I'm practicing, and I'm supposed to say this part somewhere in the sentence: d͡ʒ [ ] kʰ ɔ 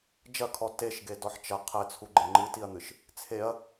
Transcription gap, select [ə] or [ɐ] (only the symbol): ɐ